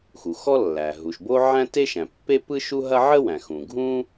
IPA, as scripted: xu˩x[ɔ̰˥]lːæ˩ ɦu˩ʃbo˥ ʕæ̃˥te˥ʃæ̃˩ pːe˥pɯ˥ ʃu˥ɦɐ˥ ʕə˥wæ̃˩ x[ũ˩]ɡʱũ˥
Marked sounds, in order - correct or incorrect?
incorrect, correct

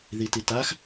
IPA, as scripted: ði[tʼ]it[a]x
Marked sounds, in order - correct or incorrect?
incorrect, correct

